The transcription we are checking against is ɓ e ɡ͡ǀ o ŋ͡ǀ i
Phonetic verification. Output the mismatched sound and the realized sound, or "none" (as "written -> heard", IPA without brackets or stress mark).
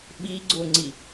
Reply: e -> i